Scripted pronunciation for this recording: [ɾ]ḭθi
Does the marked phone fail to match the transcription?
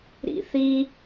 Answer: no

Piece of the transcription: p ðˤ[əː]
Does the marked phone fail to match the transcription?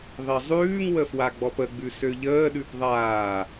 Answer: yes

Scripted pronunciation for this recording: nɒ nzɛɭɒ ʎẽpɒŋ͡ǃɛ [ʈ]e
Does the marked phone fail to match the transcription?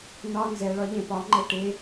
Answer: no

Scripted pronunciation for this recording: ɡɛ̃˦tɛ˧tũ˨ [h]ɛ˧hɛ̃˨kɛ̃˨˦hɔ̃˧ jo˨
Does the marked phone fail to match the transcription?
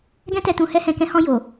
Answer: no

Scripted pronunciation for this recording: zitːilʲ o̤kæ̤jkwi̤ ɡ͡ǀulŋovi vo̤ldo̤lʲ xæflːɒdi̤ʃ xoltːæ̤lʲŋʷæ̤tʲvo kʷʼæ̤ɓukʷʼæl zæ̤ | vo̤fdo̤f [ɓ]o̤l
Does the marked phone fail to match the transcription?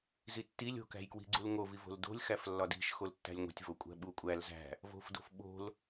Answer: no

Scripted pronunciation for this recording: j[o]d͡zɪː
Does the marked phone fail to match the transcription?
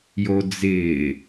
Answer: no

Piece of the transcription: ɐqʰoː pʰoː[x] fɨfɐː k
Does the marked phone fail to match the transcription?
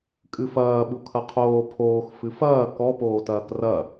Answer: no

